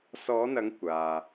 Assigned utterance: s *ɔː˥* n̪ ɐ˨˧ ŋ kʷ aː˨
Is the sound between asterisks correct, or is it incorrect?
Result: incorrect